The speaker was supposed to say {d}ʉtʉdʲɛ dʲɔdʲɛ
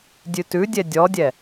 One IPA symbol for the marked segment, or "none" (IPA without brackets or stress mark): dʲ